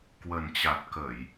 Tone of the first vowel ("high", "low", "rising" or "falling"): low